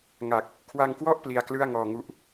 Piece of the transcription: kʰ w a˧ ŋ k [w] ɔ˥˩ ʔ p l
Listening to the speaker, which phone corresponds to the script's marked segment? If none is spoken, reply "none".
w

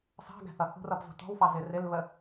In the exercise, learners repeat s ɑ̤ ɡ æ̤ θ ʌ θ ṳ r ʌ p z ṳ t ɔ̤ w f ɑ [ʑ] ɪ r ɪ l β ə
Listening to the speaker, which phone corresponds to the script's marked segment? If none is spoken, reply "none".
z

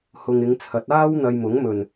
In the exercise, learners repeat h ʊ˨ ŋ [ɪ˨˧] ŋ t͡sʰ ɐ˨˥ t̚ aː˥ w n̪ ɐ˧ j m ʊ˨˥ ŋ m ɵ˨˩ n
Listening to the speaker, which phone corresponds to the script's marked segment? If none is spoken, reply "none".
ɪ˨˧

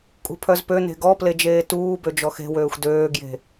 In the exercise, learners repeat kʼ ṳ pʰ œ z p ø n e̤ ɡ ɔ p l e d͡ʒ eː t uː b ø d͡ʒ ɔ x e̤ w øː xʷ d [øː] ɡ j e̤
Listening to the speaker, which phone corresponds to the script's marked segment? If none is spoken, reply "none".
øː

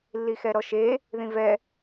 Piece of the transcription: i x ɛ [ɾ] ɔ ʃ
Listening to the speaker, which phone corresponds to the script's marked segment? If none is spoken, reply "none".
ɾ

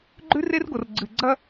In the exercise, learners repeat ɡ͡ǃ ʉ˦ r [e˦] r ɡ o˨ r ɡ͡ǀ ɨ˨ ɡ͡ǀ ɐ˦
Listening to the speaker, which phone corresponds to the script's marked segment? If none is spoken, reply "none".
e˦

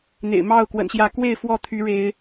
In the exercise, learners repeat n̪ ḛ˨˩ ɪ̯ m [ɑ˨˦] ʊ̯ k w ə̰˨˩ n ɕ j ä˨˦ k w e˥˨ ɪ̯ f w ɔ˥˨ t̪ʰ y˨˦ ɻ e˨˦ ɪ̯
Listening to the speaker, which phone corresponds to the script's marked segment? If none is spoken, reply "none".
ɑ˥˨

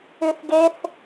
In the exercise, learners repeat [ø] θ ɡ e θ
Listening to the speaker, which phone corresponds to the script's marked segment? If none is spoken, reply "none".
ʉ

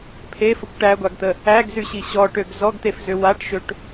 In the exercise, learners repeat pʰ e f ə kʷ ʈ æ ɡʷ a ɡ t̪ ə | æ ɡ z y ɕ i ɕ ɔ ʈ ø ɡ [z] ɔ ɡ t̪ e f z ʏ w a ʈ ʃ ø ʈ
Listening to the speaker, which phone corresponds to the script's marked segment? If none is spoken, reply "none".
z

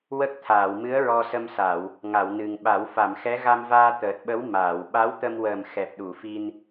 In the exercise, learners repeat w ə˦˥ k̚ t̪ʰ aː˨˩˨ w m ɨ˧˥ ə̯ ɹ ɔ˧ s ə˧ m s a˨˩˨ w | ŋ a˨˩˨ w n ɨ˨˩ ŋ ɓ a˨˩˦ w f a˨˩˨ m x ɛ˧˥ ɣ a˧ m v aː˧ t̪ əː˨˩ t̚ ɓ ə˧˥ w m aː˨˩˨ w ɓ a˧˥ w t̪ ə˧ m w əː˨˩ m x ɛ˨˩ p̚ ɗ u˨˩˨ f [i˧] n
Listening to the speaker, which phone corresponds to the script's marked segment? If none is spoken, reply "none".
i˧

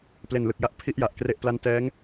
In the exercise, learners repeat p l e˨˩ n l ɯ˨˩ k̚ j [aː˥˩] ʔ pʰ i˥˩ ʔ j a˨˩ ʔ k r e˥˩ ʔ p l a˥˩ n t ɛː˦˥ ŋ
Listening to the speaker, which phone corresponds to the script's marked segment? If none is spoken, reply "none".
a˥˩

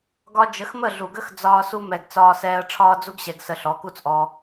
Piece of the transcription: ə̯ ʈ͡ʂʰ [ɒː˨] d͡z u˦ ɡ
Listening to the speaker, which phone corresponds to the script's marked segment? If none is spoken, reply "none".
ɒː˦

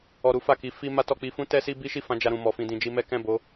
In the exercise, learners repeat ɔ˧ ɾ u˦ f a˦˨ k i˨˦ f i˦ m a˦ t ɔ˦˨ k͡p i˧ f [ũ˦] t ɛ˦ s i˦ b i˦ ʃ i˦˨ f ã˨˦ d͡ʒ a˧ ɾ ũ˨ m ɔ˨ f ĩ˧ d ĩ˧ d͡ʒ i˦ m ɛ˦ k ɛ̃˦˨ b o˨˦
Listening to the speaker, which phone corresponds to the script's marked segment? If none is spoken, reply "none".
ũ˦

